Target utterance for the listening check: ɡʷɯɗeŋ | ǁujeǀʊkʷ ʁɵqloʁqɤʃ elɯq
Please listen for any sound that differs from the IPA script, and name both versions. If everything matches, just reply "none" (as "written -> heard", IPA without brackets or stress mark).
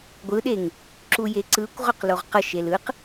ʊ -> ɯ